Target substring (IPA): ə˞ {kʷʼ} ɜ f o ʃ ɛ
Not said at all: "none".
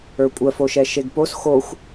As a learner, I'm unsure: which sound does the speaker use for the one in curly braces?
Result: kʷʼ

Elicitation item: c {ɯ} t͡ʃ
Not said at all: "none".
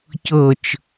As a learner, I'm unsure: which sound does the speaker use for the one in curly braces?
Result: ɤ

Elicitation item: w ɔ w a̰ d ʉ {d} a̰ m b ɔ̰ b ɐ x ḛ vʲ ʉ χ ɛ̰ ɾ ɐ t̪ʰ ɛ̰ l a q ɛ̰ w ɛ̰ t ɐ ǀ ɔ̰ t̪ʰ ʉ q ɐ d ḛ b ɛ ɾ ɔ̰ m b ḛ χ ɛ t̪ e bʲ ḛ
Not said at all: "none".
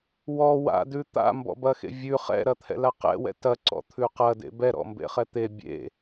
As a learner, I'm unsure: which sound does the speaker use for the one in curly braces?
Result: t̪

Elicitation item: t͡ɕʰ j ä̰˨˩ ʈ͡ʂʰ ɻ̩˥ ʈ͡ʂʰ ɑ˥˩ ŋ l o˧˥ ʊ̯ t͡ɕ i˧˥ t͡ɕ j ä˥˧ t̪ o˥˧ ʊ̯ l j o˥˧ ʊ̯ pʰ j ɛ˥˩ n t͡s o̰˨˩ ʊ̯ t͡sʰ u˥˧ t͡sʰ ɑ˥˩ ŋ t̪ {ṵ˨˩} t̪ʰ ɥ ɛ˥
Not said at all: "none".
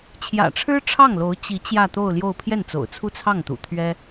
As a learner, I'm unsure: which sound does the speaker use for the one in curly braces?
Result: ṵ˨˩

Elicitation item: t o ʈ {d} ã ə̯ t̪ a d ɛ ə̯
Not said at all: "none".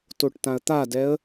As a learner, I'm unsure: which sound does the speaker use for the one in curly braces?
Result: t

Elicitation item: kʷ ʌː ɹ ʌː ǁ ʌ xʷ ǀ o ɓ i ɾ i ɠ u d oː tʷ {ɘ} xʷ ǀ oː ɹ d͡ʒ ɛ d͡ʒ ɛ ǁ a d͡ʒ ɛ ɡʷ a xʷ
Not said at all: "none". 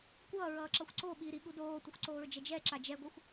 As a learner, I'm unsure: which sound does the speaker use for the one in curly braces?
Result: ɘ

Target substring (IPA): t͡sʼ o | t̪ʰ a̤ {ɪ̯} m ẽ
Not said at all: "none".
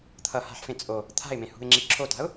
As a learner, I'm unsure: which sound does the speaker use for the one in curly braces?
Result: ɪ̯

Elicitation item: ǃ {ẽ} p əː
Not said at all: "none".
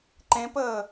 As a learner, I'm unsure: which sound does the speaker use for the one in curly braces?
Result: ẽ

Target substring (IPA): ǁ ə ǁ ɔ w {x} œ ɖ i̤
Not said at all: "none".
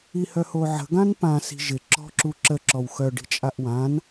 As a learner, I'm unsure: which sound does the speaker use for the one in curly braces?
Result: x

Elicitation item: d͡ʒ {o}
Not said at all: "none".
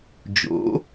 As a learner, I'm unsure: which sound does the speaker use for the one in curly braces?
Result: o̰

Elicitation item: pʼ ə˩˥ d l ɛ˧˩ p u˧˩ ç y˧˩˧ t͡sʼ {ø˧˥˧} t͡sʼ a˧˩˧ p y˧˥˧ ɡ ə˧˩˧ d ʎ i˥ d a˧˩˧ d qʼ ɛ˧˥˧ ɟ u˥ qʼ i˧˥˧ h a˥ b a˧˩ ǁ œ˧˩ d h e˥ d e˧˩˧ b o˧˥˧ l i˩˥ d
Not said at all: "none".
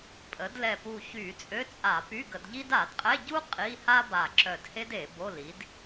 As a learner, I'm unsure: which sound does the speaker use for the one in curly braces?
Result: ø˧˥˧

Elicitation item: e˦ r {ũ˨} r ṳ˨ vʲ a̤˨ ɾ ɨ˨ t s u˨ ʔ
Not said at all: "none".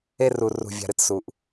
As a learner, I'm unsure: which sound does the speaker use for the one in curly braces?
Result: u˨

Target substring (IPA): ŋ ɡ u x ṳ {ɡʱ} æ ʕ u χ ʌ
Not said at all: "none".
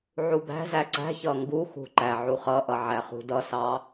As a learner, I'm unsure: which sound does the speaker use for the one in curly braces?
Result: ǃ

